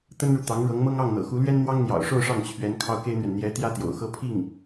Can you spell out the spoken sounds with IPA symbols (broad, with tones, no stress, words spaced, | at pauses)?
t̪ə˥nɻu˨ t̪ɑ˧˥ŋɻɤ˧˥ŋmɤ˥ŋ ɑ˥˩ŋn̪ɤ̰˨˩xu˧˥lɥɛ˥n n̪wɑ˥ŋn̪jɑ̰˨˩ʊ̯ʂo˥˧ʊ̯ ʂɑ˥˩ŋt͡ɕʰɥɛ˧˥n kʰɑ˥ʊ̯ke˥ɪ̯n̪ɥɛ˨n n̪jɛ˧˥ t̪jä˥t̪jo̰˨˩ʊ̯xɤ˥pʰi˥˩ŋ